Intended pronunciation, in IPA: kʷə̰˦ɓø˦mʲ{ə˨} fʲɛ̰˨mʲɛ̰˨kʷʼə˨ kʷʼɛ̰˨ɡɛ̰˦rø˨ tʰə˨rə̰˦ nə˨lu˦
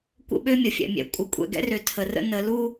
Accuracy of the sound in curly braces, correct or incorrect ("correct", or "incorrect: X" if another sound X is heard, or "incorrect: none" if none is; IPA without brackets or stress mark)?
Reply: correct